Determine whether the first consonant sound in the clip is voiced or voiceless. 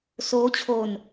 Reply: voiceless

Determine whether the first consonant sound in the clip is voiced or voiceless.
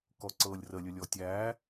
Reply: voiceless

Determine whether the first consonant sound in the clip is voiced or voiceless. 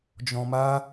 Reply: voiced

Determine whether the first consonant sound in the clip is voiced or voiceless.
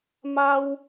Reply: voiced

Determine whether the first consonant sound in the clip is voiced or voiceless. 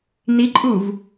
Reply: voiced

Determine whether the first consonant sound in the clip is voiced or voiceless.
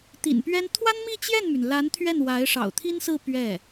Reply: voiceless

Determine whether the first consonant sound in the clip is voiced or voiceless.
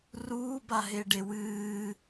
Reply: voiced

